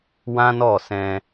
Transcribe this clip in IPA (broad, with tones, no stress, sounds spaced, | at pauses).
w ã˦ n ɔ˦˨ s ɛ̃˧